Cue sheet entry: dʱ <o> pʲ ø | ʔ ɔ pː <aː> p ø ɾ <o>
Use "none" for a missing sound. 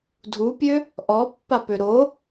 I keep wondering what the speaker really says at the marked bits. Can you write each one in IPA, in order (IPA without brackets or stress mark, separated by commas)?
u, a, o